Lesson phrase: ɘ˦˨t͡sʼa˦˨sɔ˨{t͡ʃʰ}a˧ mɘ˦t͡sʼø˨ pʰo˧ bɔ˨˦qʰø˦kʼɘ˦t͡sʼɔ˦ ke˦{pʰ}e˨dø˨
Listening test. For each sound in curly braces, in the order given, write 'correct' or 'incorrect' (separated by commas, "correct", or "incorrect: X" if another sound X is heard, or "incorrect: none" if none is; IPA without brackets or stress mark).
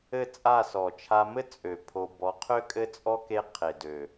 correct, incorrect: qʰ